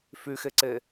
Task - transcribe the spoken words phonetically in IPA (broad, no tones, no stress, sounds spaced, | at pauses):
f y x e ǀ e